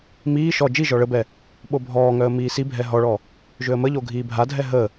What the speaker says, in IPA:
m iː ʃ ɔ d͡ʒ i ʒ ɔ ɭ ə b ɛ | ɓ o bʱ ɔː ŋ œ ə̯ m iː s i bʱ ɛ ɦ ɔ ɭ ɔ | ʒ ø ə̯ m ə ʎ o ɡʱ iː bʱ a dʱ ɛ ɦ ə

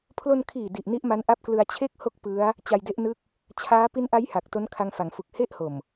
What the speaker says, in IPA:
pʰ l o˧ n kʰ iː˨˩ d i˨˩ ʔ n i˦˥ ʔ m a˦˥ n ʔ a˦˥ p̚ k l ɯ˧ a̯ t͡ɕʰ e˥˩ k̚ h o˦˥ k̚ p ɯ˦˥ a̯ | t͡ɕ a˧ j d e˦˥ ʔ n ɯ˦˥ k̚ | t͡ɕʰ aː˦˥ p i˦˥ n ʔ a˦˥ j h a˨˩ k̚ t o˦˥ n kʰ a˧ ŋ f a˩˦ ŋ f u˨˩ k̚ h e˥˩ ʔ h o˨˩ m

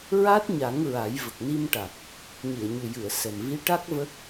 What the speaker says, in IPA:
ɹ a˦˥ t̚ ɲ a˨˩˦ ŋ ɹ a˨˩˦ j v ə˨˩ k̚ n i˧ m ʈ a˨˩ k̚ | ɲ ɨ˨˩˨ ə̯ ɲ u˨˩ j ɨ˨˩˨ ə̯ s ɛ˨˩ m v i˧˥ ʈ a˦˥ k̚ v ə˦˥ k̚

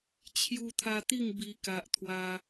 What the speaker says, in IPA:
t͡ɕʰ j u˧ t̪ʰ a˧ t̪ i˥˧ ŋ b i˧ k a˨ ʔ t̪ʰ w a˧

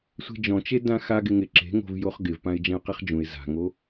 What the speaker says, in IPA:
sʷ e̤ d͡ʒ ɔ̃ t͡ʃ e d ã x a ɡ ɪ ŋ ɪ ǁ e̤ ŋ o̤ v j o χ ɡ ɪ v p ã ɪ̯ d͡ʒ ɛ̃ ʊ̯ q e χ d͡ʒ ũ ɪ̯ z a̤ ŋ o

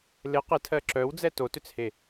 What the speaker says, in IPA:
l ɪ q ɪ tʰ ɜ ǁ œ w d͡z ɛ t o t ʏ t͡s h e

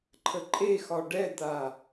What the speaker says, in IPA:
ǃʰ ə ǃʼ e x ɒ ɖ ɛ d̪ a

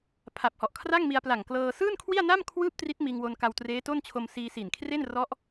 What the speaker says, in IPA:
pʰ a˨˩ p̚ h ɔ˨˩ ʔ kʰ r a˥˩ ŋ m i˧ a̯ p l a˨˩ ŋ k l ɤː˧ s ɯː˥˩ n kʰ w i˥˩ a̯ n a˥˩ m kʰ w ɯː˥˩ p̚ t r i˦˥ t̚ m iː˧ ŋ w o˧ n k a˧ w t r eː˦˥ t o˥˩ n t͡ɕʰ o˧ m s iː˧ s i˨˩ n kʰ r e˥˩ n r ɔ˦˥ ʔ

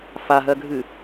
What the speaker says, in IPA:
f a ɦ ɜ ɡʱ ɨ

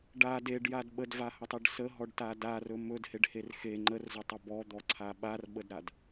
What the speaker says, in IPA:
ɖ a d e ɖ j a d ɓ ə d v a h ə tˤ e ɖ s ə ɦ ɔ ɖ t a d a r ɵ m ɵ d h e ɖ h e r x e ŋ͡ǃ ə r z ə tˤ ɵ b ɔ d̪ ɔ ǀʰ a ɓ a r ɓ ə d ɾ a d

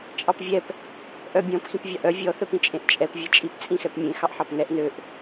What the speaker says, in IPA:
t͡ʃʼ ɑ p vʲ ɛ p | ʔ œ bʲ ɔ̃ p x ĩ p vʲ ɑ ʔ œ vʲ ɔ θ œ p ĩ t͡ʃʼ ẽ ʔ t͡ʃʼ ɛ p vʲ ɛ t͡ʃʼ i p t͡sʼ ĩ x ɛ p mʲ ẽ x ɑ ʔ ħ ɑ p ŋ ɛ ʔ n ø ʔ

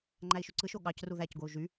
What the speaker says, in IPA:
ŋ͡ǃ æ i̯ ʃ y ǀ ɯ ʃ o ɠ ɑ c r u ð æ c ɡʷ e u̯ ʒ y

